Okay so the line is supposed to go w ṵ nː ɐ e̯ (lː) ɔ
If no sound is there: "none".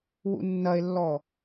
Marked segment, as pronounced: lː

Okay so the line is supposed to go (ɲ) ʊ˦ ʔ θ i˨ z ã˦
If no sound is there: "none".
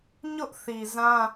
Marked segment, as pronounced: ɲ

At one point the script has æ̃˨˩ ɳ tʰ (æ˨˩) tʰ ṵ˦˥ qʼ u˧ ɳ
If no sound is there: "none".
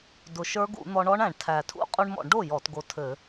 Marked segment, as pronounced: æ˨˩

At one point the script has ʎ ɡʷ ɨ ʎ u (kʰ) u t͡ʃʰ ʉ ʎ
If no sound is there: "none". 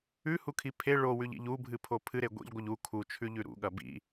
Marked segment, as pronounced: kʰ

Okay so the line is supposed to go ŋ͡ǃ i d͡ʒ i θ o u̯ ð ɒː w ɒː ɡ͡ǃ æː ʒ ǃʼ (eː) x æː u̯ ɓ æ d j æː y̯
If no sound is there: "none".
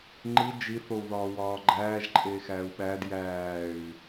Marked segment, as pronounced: eː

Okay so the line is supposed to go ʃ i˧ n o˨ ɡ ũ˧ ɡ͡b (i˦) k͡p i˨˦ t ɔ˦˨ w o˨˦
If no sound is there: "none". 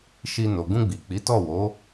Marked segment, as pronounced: i˨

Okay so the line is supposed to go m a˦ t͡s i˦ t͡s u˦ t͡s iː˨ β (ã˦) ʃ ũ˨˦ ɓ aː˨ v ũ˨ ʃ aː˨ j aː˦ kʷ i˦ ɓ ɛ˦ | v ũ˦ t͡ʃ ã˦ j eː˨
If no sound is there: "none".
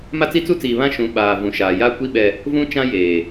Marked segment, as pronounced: ã˦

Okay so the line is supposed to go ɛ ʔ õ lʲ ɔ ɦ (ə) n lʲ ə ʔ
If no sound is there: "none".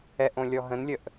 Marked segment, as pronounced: ə̃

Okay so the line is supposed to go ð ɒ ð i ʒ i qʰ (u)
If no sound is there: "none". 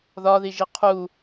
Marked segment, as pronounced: u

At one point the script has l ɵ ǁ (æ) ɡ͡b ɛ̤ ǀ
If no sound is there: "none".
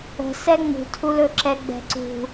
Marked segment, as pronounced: ɛ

